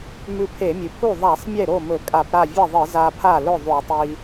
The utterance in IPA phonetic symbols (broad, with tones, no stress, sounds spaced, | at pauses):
m ʉ˧ pʰ e˧˩˧ mʲ ɨ˩ pʰ u˥˩ ðˤ a˧˩˧ sˤ mʲ e˥˩ ɾ o˥˩ m ɵ˧˩˧ kʼ a˧˩˧ p ɾ a˥˩ vʲ ɐ˥˩ ðˤ ɨ˧˩˧ z a˧ pʰ a˥˩ l ɵ˥˩ ðˤ u˧˩˧ tˤ i˧